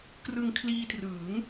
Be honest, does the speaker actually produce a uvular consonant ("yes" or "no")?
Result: no